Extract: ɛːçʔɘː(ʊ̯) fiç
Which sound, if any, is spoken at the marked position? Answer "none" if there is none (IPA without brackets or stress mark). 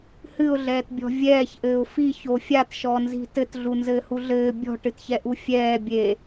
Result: ʊ̯